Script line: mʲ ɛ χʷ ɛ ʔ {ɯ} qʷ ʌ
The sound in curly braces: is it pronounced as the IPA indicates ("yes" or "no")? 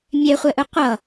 yes